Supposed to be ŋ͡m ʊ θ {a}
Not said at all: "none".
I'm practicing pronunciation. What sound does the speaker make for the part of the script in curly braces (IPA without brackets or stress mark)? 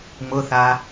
a